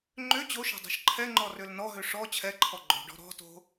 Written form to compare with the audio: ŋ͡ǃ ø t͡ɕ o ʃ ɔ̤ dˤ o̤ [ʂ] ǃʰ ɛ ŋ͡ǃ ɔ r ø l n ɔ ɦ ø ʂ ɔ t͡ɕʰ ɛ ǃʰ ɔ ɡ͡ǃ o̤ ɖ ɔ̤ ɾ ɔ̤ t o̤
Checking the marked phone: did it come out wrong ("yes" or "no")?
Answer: yes